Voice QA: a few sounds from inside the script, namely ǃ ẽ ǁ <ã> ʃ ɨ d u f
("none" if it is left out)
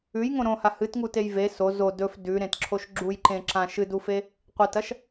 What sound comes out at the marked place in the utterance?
ã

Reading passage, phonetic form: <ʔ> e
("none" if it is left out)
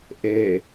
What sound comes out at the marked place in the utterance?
ʔ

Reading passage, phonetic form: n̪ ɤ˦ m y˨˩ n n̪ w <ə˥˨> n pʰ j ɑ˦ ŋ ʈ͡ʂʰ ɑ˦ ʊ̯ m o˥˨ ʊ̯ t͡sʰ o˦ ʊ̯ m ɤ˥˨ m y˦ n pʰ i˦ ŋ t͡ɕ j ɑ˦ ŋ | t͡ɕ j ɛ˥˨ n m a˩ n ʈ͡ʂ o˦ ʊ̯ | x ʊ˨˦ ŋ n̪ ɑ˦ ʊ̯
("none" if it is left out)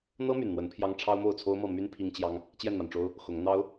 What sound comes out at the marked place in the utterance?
ə˨˦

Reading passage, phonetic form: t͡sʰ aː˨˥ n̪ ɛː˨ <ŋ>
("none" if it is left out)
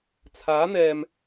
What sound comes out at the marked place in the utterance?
m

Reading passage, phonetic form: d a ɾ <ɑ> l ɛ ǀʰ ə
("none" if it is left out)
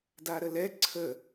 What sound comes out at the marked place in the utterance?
ə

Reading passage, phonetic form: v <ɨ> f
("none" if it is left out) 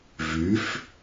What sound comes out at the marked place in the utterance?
y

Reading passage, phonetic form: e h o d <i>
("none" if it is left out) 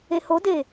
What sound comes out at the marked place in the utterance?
e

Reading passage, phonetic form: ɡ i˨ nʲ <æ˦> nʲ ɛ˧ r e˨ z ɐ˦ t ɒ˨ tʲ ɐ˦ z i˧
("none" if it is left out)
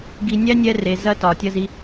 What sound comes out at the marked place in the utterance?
æ˦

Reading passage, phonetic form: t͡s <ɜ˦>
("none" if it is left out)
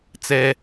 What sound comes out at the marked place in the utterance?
ɛ˦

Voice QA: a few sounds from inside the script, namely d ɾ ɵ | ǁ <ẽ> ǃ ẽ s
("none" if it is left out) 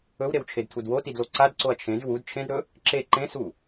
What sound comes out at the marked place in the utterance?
e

